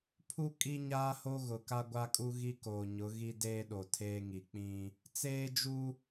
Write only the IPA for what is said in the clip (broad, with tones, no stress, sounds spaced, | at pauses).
pʰ u˦ kʼ i˦ ɲ aː˦ h o˦ ɣ ʊ˨ k a˦ ɡʷ a˦ kʼ u˦ ɣ i˦ k oː˨ ɲ ʊ˨˦ ɣ i˦ d eː˦ ɗ o˨ tʰ eː˦ ŋ i˨ k͡p ĩ˦ | t͡s eː˦ d͡ʒ u˦